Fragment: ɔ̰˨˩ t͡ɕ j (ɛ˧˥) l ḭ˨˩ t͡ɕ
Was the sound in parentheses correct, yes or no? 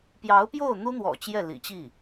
no